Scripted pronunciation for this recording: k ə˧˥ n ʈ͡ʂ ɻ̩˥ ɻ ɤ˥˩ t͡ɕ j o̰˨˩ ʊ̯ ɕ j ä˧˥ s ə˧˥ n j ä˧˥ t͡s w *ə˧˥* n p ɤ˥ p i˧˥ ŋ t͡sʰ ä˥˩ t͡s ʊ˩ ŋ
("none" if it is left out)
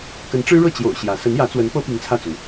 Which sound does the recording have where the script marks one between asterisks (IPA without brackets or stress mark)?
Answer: ə˧˥